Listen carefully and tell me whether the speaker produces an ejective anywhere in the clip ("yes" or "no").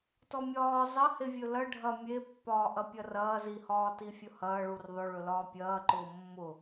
no